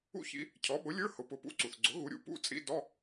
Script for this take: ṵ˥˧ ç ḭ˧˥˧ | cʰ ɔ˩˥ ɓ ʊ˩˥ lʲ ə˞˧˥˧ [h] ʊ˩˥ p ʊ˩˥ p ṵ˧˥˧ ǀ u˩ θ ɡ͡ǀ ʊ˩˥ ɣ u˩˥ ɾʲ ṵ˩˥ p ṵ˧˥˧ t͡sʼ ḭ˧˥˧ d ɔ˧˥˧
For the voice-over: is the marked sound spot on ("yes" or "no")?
yes